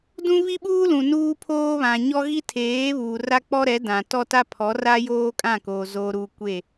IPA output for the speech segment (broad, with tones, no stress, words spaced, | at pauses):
dũ˦ βi˦ɓuː˦lũ˨ nuː˦pʰoː˦βã˨ɲɔ˦ ɣi˦tʰeː˨˦βuː˨ ra˦k͡pɔ˦ ɾɛ˨˦dã˨ tɔ˦ta˦pʰɔ˨˦ra˦ joː˦kʼã˦˨koː˨ zoː˨ɾuː˨ kʷe˦˨